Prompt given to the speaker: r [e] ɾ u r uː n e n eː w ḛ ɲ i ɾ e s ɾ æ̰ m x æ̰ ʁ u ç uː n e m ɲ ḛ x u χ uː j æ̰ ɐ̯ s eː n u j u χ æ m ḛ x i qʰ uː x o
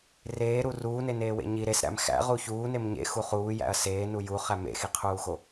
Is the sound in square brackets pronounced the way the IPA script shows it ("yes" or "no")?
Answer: no